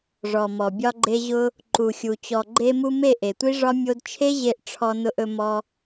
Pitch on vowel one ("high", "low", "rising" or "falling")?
low